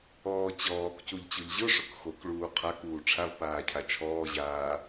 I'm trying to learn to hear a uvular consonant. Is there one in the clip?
yes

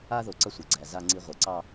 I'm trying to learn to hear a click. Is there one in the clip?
yes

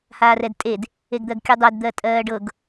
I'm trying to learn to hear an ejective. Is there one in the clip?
yes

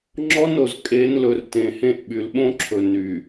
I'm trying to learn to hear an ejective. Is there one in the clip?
yes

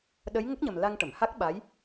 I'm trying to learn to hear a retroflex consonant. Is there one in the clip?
yes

